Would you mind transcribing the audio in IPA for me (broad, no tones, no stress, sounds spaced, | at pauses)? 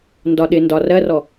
n d ɒ ɗ ɪ n d ɒ r ɜ r ɔ